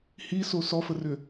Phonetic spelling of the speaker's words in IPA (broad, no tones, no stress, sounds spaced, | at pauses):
h i s o s ɔ f ə r ʏ